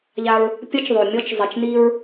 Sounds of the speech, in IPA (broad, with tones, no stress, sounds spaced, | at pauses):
ʎ a˧ ɹ | pʲ ʌ˦ t͡ʃ ðˤ o˨ mʲ ɔ˧ t͡ʃ zˤ ɪ˨ t͡ʃ n i˧ ɹ